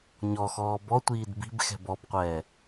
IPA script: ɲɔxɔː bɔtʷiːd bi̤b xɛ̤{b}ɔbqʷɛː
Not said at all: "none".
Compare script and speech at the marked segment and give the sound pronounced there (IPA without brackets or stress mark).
b